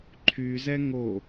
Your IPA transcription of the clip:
ǃʰ y z ɛ ŋ o

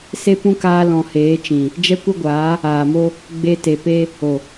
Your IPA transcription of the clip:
s e˦ p ũ˦ k aː˧ l ɔ̃˨ h eː˨˦ t͡ʃ ĩ˨ | d͡ʒ ɛ˦ kʷ ə˦ ɡʷ aː˨˦ | aː˨ m o˦ | ɡ͡b e˧ t e˨ p e˦ | o˨

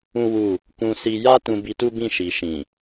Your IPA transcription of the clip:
ũ˦ w u˦˨ | k ũ˧ s i˧ j a˦ t ũ˧ b i˧ t u˦ b ĩ˦˨ ʃ i˨ ʃ ĩ˨

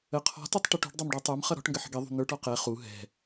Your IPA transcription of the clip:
ə qʰ ɔ̤ t ʊ tˤ ʈ i ʈ ṳ ɖ dˤ ɛ m ɖ ɔ tˤ ə˞ m χ ʌ ɾ ɔ̤ ʈ ŋ ɡ ə ħ ə̤ ɡ i ðˤ ṳ n̪ ə˞ ʈ ɔ q ɛ χ u ɦ ɛ̤

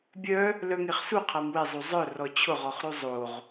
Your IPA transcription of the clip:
bʲ œ | l œ ŋ e χ s u qʰ a m w e zˤ u zˤ œ r ɔ t͡ɕʰ ʊ ʁ ɔ χ ɾ u zˤ o ʁ

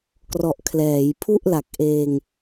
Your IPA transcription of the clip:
k r ɔ˨˩ ʔ kʰ l ɛː˩˦ j pʰ u˥˩ ʔ l a˨˩ k̚ ʔ eː˧ ŋ

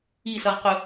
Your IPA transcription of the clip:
i s ʌ ʁ q ʊ

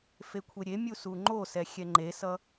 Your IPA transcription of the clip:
f e kʷʰ e ɾʲ e mʲ u s u ŋ͡ǃ o s ɛ xʲ ɛ ŋ͡ǃ e s ʌ

